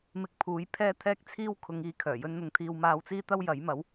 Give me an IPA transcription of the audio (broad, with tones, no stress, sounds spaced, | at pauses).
m ɪ˧ k̚ pʰ uː˨˥ j pʰ ɛː˥ t̪ʰ ɛː˥ k̚ t͡sʰ iː˥ w kʰ ʊ˨˧ ŋ iː˨˥ kʰ œː˨˩ j ɵ˥ n n̪ ʊ˧ ŋ t̪ʰ iː˧ w m aː˧ w t͡s iː˥ t̪ ɐ˥ w j ɐ˨˥ j m ɐ˨˥ w